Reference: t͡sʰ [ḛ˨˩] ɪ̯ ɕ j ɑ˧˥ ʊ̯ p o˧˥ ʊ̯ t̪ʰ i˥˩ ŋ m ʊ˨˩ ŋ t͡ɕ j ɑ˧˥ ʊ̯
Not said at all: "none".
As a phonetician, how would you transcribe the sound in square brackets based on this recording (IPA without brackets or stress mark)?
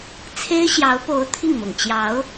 e˥